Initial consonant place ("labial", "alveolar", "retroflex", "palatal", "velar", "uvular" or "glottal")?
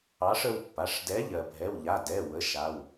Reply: retroflex